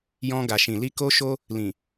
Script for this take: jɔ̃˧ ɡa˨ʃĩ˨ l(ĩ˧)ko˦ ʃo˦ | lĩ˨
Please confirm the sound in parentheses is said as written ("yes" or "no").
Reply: no